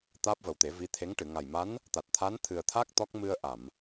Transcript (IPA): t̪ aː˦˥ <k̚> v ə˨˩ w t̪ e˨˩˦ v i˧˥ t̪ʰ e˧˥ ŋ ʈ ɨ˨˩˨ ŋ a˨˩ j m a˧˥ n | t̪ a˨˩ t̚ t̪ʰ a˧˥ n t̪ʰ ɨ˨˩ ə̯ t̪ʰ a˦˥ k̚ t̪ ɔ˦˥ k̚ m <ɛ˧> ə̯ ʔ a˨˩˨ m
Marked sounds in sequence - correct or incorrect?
incorrect: p̚, incorrect: ɨ˧

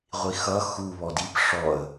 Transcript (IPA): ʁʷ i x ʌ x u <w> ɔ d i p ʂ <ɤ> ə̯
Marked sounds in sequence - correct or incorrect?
incorrect: β, incorrect: ɔ

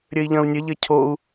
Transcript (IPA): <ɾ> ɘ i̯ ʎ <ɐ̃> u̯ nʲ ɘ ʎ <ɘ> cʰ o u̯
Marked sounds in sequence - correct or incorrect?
incorrect: ɾʲ, correct, correct

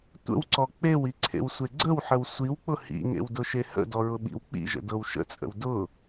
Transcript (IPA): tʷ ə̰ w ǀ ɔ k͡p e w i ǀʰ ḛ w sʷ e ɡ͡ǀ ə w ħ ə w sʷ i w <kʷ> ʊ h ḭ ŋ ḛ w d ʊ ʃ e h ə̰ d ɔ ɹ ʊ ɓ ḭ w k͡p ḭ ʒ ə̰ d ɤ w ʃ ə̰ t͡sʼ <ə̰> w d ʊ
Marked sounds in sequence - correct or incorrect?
incorrect: k͡p, correct

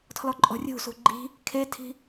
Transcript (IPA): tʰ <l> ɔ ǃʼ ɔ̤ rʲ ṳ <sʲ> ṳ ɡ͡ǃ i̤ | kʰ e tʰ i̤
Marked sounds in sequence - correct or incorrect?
correct, incorrect: s

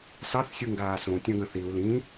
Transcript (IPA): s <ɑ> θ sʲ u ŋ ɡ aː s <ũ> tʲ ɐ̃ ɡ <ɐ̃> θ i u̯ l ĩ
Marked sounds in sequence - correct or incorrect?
correct, incorrect: õ, correct

